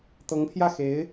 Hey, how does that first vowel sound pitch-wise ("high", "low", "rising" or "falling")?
rising